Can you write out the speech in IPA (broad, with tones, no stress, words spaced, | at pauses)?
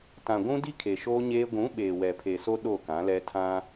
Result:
tã˨ ɡʷũ˦di˦ kʰe˨ʃoː˦ɲeː˦ ɡʷũ˨˦ ɓeː˨wɛ˨pʰe˨so˦ ɗo˦˨kã˨˦lɛ˦ tʰã˦